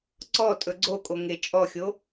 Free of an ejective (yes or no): no